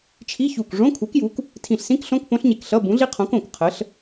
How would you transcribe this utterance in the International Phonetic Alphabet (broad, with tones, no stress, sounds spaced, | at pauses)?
t͡ʃʰ i˧˥˧ ç u˧˩ k ʐ õ˧˥˧ kʰ u˨˥ k j u˨˥ k | tʰ ĩ˧˩ ɬ s ĩ˦˥ k ɬ õ˧˥˧ k p õ˦˥ ɬ ɲ e˧ k ɬ ʌ˧˥˧ b ũ˨˥ ɮ i˦˥ qʰ õ˨˥ k õ˧˩ k qʰ ə˨˥ ɬ